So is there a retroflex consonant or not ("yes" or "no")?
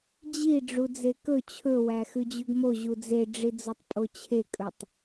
yes